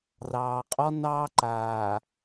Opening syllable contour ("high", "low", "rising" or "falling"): low